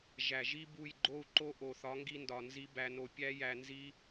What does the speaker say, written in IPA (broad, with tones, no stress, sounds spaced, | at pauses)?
ʒ æ˨ ʒ i˦ b u˦˨ j ɡ͡ǃ o˦˨ u̯ ǃ o˦ ʔ o˨ θ ɒ˨˦ ŋ ɡ i˧ n d ɒ˨ n z i˦ b æ˧ n o˧ pʲ æ˦ j æ˧ n z i˦